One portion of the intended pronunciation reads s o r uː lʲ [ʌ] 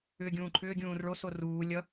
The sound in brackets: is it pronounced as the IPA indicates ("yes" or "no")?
yes